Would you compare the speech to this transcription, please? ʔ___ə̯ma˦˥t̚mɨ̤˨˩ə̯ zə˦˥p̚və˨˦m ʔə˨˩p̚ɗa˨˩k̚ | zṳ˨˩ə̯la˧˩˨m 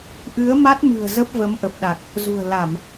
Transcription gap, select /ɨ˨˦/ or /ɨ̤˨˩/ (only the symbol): ɨ˨˦